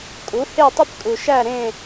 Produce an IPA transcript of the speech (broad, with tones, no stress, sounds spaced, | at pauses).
kʼ u˩˥ h e˥˨ tˤ i˥ p kʼ u˩ ʃ æ˥˨ ɾ ẽ˥˨